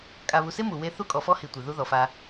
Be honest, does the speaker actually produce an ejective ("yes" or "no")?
yes